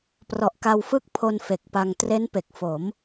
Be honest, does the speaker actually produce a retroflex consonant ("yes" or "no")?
no